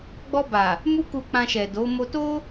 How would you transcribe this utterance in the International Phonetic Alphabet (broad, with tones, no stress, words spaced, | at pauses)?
ɡ͡bɔ˧ba˨ | mu˧ku˨ k͡pã˧ʃɛ˨do˨˦mo˦ to˦